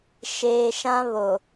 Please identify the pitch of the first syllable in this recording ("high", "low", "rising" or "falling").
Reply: low